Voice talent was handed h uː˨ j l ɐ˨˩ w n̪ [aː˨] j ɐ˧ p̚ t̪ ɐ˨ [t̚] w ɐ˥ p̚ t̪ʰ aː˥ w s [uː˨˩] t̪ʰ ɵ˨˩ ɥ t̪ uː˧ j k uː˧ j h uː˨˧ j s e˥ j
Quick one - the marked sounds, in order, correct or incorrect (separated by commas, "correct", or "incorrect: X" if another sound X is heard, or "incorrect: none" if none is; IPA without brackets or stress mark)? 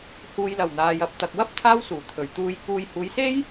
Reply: correct, incorrect: k̚, correct